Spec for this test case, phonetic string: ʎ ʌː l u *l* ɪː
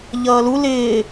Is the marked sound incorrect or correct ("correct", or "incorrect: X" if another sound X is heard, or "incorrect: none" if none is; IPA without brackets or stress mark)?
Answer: correct